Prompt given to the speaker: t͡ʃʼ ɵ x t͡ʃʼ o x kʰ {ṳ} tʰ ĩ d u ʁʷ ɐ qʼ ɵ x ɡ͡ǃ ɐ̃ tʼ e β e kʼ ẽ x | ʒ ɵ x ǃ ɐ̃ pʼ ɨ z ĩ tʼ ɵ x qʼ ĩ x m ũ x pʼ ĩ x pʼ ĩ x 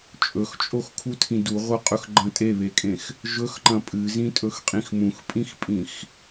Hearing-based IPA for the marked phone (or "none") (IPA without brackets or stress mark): u